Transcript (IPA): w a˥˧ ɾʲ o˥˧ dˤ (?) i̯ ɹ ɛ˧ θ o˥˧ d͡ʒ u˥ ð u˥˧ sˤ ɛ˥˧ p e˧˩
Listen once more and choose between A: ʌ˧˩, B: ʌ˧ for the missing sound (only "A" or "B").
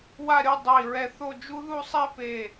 A